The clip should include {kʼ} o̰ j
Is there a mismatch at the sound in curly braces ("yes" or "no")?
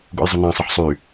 yes